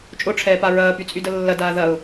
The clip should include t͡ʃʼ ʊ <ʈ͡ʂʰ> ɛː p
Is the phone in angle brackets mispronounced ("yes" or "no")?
no